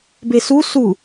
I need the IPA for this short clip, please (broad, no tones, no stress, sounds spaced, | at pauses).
b e s u s u